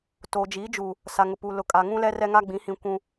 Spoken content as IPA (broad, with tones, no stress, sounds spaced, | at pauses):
t oː˨ d͡ʒ i˨˦ d͡ʒ uː˨ | s a˨ ŋ ʊ˨ p uː˨ l ʊ˨ kʼ a˨ ŋ ũ˦ l ɛ˦ r ɛ˦ ŋ a˦ ɡ͡b ĩ˨˦ h ĩ˨ kʷ ũ˨